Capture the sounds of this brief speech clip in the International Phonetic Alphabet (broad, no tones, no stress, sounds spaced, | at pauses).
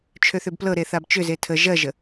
t͡ʃʰ ø θ ʏ b p l ɤ ɾ e θ a b t͡ʃ ʏ z e tʰ ə ʒ ɜ ʒ ə